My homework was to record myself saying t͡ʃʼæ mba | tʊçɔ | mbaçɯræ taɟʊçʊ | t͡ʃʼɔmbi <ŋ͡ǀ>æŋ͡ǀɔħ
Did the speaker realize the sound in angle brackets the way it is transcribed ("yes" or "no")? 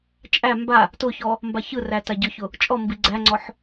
no